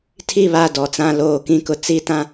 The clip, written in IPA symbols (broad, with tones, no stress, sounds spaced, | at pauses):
tʰ i˦˨ β a˦˨ d ɔ˨ t͡s ã˦˨ l oː˦˨ k ĩ˦ k ʊ˨ t͡s i˦ t ã˦